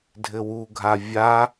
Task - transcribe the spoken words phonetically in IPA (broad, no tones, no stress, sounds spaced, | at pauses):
dʱ ɘ w u ɡʱ a vʲ a